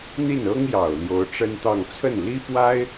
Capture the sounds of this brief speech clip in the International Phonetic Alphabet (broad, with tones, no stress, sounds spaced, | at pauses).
n̪ i˥˩ n ɤ˥ ŋ j ɑ˨˩ ʊ̯ l j o˧˥ ʊ̯ ʈ͡ʂ ə˥ n t̪ ɑ˥˧ ŋ t͡sʰ ə˥˩ n l i˥ p w a˥ ɪ̯